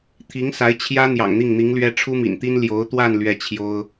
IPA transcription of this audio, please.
t̪ʰ i˧˥ ŋ s a˧˥ ɪ̯ t͡ɕʰ j ä˥ n̪ j ɑ̰˨˩ ŋ n̪ i˥˩ ŋ n̪ i˧˥ ŋ l ɥ ɛ˥ ʈ͡ʂʰ u˥ m ḭ˨˩ n t̪ i˥ n l j o˧˥ ʊ̯ t̪ w a˥˧ n l ɥ ɛ˥˩ t͡ɕʰ j o˥ ʊ̯

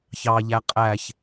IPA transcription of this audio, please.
ç ɑ ʎ æ qʼ æ ç

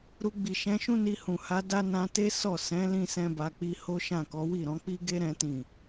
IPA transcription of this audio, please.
ɾ u˧ ɡ͡b i˨ ʃ ɛ̃˨˦ ʃ ũ˦ n i˧ h ũ˨ h a˧ d a˦ n ã˧ t e˦ s ɔ˦˨ s ɛ̃˨˦ l ĩ˦ s ɛ̃˦ b a˧ k͡p i˧ h o˦ ʃ ã˦˨ k ɔ˨˦ w i˦˨ ɾ ɔ̃˨˦ k͡p i˦ ɡ e˦ ɾ ɛ̃˦ t ĩ˦˨

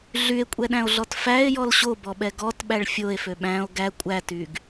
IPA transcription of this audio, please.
ɮ y e̯ kʷʼ ɛ ɗ æ̃ o̯ ɮ ɔ t f æ e̯ j ɔ l ɕ o b ɔ ɓ ɛ ɡ ɔ t ɓ æ ɭ fʲ o e̯ f ø ɓ æ̃ o̯ ɡ æ kʷʼ æ t y ɡ

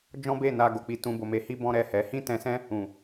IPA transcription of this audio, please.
d͡ʒ ɔ̃˦ b e˦˨ n a˧ ɡ o˨ k͡p i˧ t ũ˧ b o˧ m e˧ h i˦ b ɔ̃˦ ɾ ɛ˦˨ h ɛ˨˦ h ĩ˦ t ɛ̃˧ s ɛ̃˦ | ũ˨

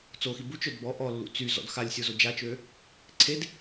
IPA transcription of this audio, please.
t͡s o x i b u t͡ʃ œ d b ɔ ʔ ɔ lː ṵ t͡s y z ɔ̰ d x a lʲ sʲ o z o d͡ʒ a t͡ʃ ø | ǀʰ e d

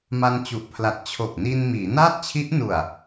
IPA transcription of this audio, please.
m a˧ n t͡ɕ u˨˩ ʔ pʰ l a˨˩ t̚ t͡ɕʰ o˨˩ k̚ n i˧ n m iː˩˦ n aː˥˩ t̚ t͡ɕʰ i˦˥ ʔ n u˨˩ a̯

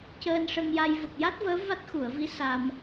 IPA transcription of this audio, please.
c əː˧ n ʂ ə˧ ŋ j a˧ j v ə˨˩ k̚ j a˦˥ t̚ v əː˧˥ v a˦˥ t̚ x u˨˩˨ ə̯ v i˧˥ s a˧ m

